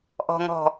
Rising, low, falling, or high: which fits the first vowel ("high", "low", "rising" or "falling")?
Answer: low